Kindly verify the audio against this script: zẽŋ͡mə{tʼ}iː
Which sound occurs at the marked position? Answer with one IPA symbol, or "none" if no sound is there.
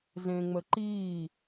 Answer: ǃ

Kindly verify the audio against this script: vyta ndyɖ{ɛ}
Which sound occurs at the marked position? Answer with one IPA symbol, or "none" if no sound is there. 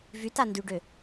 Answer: ø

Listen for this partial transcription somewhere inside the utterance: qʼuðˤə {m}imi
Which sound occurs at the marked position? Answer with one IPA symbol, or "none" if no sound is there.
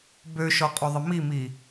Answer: m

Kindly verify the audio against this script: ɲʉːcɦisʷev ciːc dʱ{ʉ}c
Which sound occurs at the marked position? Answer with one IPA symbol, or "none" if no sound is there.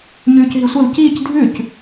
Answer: ʉ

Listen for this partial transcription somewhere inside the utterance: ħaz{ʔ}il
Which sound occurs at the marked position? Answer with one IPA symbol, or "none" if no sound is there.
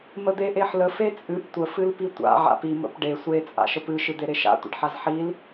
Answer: ħ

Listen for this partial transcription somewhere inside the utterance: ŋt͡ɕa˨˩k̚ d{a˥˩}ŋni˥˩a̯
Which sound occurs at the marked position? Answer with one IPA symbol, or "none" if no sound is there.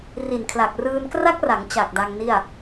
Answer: a˧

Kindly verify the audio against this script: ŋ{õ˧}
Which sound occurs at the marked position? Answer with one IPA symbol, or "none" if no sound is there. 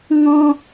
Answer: ɔ̃˧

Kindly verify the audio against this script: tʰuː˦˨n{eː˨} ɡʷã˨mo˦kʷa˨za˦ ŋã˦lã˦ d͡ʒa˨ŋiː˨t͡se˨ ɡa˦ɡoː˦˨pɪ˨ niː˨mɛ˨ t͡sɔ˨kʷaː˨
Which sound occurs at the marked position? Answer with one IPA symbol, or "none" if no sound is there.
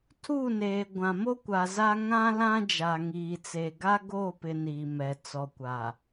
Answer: eː˨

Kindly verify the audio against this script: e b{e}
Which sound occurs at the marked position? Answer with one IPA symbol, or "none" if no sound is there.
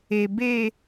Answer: e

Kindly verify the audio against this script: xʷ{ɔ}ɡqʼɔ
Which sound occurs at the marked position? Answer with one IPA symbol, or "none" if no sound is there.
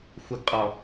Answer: ə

